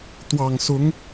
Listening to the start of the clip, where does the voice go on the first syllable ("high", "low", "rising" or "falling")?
low